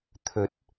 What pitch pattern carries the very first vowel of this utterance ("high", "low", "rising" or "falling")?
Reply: rising